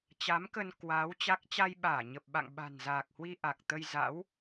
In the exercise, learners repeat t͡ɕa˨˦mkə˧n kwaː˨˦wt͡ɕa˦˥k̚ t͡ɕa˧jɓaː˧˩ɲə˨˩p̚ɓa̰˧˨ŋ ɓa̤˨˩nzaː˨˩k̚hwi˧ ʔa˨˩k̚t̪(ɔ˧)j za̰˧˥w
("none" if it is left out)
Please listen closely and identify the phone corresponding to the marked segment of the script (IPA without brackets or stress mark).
ə˧